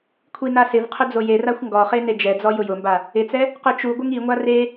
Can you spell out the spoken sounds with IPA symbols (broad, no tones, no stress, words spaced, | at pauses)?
kʷʰinasɪvqʰʊ d͡zojeraxʷ ŋɡɔχe ned͡ʒɛd͡zɔ jʊjʊmba | ɪt͡sɛ | qʊt͡ʃuɡʷɪŋ iŋʷa re